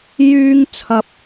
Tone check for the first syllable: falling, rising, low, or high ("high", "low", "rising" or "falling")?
high